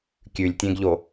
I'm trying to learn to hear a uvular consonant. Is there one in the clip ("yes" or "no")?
no